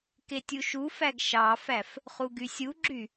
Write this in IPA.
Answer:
k e tʲ u ʃ u f æ ɡ ʃ ɑ f æ f | χ u ɡ y sʲ u ɡ͡ǁ y

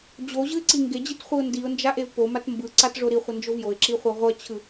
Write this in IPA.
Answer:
d͡ʑ o ʑ ɯ ɪ̯ ǀ i ŋ ɡ e d͡ʑ i t χʷ i ʊ̯ n d i ʊ̯ n d͡ʒ a ʔ e v p o m a t m b ɯ ǀ a t ʐ o ɾ i χʷ ʌ n d͡ʒ o v j o ɪ̯ ǁ i χʷ a ʁʷ ʌ t͡ɕʰ ɯ

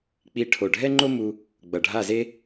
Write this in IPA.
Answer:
k͡p i˧ ʈʰ o˧˩ ɖʱ ɛ˥ ŋ͡ǃ o˥ m u˧ | ɡ͡b ʌ˧˩ ɖʱ a˥˧ z e˥

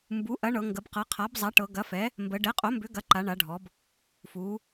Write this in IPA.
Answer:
m b u˩˥ ʔ ɐ˩˥ ɳ ɤ˩˧ ŋ ɡ ə˩˧ b q ɤ˩˥ qʰ a˩˥ b zˤ a˩˥ ʈ ɤ˩˧ ɡ ɐ˩˥ f ɛ˩˥ | m b ə˩˧ ɖ ɛ˩˥ qʼ o˩˥ m b ʏ˩˥ ɡ ɐ˩˥ ǃ a˩˧ ɳ a˩˧ ɖʱ ɔ˩˧ b | f u˩˧

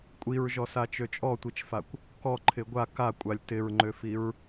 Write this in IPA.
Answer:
kʷʼ i ɹ ʒ ɔ s a t͡ʃ ø t͡ʃʼ ɔ tʷ i t͡ʃ f a kʷ | k ɔ ǃʰ ɪ ɡʷ a k a kʷʼ a lʲ t ɪ ɹ ŋ͡ǃ ø f i ɹ

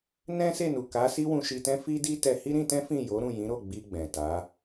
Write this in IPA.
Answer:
n ɛ̃˦ s e˦˨ n u˨ k a˨˦ s i˦ w ũ˧ ʃ i˧ t ɛ̃˦ f i˦ d i˦ t ɛ˧ h i˦ ɾ ĩ˧ t ɛ̃˦ f ĩ˦˨ j o˨˦ ɾ ũ˦˨ j ĩ˨˦ ɾ o˦˨ ɡ͡b i˧ ɡ͡b ɛ̃˨ t a˨˦

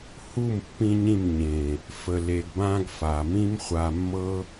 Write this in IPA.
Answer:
h u˦˨ m pː ĩ˧ ɲ ĩ˦˨ m ɲ ẽ˨ | f ə˨ l e˨ ɡ b ã˧ ɡ f a˨ m ĩ˦ m χʷ a˧ mː ɤ˦

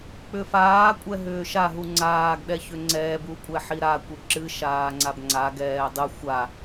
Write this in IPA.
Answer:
k͡p ʏ f aː kʷʼ ɛ ɦ ʏː ʃ a ɦ u ŋ͡ǀ aː ɡ ɗ ɛ ç ʏ ŋ͡ǀ ɛː b u kʷʼ ɛ ħ i ɾ a kʷ ɨ ǁ ɨ ʃ aː ŋ͡ǀ a b ŋ͡ǀ a ɡ ɛː dˤ ɨ xʷ a

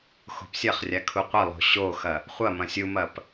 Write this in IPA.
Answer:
x o̤ p sʲ ɐ χ rʲ a kʰ u qʷ ɐ lˠ o̤ ɕ o x ɐ | χʷ ɐ m ɐ̃ sʲ u m ɐ p

